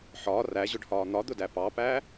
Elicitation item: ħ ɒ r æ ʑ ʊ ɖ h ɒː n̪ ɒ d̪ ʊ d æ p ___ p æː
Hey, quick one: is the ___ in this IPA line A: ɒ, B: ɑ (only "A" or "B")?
B